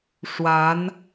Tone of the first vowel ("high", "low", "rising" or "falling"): rising